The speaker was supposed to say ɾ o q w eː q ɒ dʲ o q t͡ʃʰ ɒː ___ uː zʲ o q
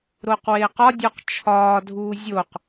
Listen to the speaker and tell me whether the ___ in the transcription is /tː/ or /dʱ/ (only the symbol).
dʱ